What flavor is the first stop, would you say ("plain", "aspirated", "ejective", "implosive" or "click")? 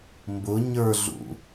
plain